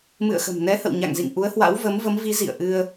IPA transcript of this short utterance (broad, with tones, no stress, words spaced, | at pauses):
mɨ̰˧˨ə̯xə̤˨˩mnɛ˨˦hə̰˧˨w ɲa̰˧˨ŋzḭ˧˨ŋ ʔu˨˦ə̯hwa̰˧˥wvə˨˦mvə˨˦m vi˨˦zḭ˧˨ə̯ʔɨ˧ə̯